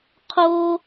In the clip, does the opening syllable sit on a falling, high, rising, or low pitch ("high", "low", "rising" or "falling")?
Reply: high